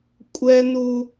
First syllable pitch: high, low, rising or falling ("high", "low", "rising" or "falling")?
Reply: high